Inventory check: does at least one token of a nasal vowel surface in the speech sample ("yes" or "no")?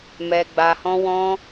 yes